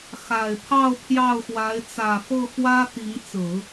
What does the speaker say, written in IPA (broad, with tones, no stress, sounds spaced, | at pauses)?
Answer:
x a˨˩ ɪ̯ pʰ ɑ˥˧ ʊ̯ pʰ j ɑ˥˩ ʊ̯ x w a˧˥ ɪ̯ t͡s ä˨˩ f ɤ˥˩ x w ä˥ t̪ i˧˥ ŋ t͡s ɹ̩˨˩˦